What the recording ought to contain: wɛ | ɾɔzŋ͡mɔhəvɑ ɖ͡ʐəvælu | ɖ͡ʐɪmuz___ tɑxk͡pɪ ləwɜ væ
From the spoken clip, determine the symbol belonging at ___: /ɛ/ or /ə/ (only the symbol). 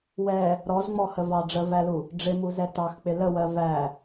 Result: ɛ